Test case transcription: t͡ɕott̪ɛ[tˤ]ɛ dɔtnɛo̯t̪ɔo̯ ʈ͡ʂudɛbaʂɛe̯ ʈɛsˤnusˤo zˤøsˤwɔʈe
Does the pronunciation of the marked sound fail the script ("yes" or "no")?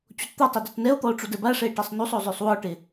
no